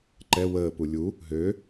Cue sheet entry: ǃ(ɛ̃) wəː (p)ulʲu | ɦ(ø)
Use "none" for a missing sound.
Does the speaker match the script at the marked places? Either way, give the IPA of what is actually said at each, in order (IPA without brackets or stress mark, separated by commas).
ɛ, p, ø